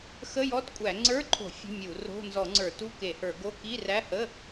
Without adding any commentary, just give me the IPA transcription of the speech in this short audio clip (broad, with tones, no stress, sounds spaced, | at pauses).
x ə˧˥˧ j ɔ˧˥˧ t kʷʼ æ˧˩˧ ŋ͡ǀ ə˞˧˥˧ ǃʰ o̤˧˩˧ fʲ ə̤˧˥˧ mʲ u˧˩˧ r o̤˧˥˧ n z ɔ˧˩˧ ŋ͡ǀ ə˞˧˩˧ t u˧˥˧ k e˧˩˧ h ə˞˧˩˧ ɡ o˧˥˧ k i˧˥˧ r æ˧˥˧ h ə˧˥˧